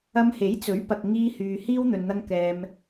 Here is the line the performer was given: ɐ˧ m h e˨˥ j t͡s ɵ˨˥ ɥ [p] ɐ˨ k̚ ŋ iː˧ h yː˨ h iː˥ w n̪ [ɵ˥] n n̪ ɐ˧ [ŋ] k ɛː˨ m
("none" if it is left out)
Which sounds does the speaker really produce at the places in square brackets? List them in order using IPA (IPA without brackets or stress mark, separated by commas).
p, ɵ˨, ŋ